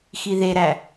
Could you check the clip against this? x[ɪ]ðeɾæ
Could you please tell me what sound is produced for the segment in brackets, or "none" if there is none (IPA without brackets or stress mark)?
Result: i